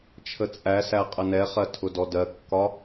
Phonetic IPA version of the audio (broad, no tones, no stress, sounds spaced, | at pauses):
t͡ʃʰ ə t͡sʼ æ s æ qʼ ə n ɛ χ ɜ tʰ ʊ d ɔ d ɜ kː ɒ